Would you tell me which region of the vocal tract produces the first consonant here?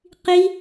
uvula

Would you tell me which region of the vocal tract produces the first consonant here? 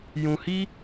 palate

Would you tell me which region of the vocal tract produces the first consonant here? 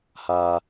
throat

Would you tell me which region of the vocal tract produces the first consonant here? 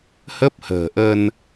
throat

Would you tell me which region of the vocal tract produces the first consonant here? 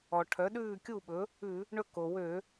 retroflex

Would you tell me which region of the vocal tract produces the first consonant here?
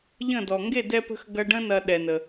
palate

